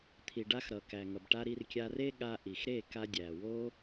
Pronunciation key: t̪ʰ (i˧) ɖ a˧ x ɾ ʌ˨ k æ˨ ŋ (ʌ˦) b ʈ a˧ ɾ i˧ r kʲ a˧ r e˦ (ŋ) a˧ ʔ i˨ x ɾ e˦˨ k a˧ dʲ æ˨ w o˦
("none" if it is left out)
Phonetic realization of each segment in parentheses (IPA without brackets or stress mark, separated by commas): i˨, ʌ˨, ɠ